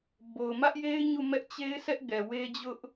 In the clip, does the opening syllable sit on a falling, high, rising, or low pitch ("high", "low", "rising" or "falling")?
low